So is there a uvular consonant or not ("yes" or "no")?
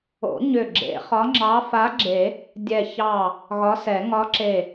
yes